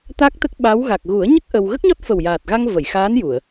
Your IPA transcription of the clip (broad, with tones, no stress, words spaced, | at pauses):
t̪a˦˥k̚t̪ə˦˥k̚ ɓa˧˥w ɣa˨˩k̚ɣu˨˩˦ə̯ɲə˦˥k̚ ʔə˧w ɣə˦˥k̚ɲɔ˦˥t̚ fə˨˩wjaː˨˩t̚ɣa˧ŋ və˨˩˨jxaː˧˥n ju˨˩˨ə̯